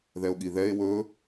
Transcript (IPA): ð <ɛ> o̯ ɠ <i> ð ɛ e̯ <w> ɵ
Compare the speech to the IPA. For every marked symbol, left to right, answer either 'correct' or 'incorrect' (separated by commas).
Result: correct, correct, correct